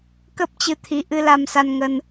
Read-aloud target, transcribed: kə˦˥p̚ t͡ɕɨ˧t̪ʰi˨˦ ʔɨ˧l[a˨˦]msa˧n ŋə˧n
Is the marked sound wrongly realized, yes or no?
yes